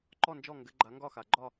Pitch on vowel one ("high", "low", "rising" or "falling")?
falling